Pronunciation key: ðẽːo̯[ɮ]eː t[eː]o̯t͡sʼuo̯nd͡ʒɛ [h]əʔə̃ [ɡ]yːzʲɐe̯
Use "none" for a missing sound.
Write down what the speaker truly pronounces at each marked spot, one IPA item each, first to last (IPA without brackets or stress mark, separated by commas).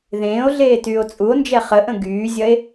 ɮ, yː, χ, ɡ